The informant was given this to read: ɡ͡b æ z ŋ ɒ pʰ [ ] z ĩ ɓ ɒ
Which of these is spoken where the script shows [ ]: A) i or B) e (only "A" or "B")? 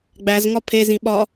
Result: B